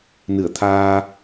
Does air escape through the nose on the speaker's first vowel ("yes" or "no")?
no